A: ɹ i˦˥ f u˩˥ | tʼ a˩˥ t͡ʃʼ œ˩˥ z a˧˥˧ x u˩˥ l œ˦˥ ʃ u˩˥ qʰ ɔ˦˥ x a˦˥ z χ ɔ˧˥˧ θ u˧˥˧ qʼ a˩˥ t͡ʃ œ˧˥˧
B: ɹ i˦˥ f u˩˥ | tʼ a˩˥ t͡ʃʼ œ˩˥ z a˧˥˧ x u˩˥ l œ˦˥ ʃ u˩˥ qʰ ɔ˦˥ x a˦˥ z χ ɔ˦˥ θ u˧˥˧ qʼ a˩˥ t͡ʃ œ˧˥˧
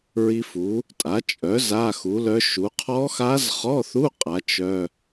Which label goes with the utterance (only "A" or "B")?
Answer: A